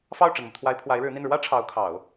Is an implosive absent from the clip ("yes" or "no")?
yes